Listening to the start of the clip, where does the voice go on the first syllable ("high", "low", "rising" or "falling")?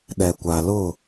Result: low